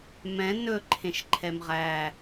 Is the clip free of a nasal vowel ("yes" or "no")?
no